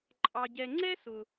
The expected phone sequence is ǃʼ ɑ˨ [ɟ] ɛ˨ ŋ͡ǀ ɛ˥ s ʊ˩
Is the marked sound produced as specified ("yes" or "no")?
yes